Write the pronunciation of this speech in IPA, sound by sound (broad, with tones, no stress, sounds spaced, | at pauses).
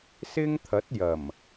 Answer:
s ɪ˥ ŋ t̪ʰ ɐ˨˥ t̚ j ɐ˨˩ m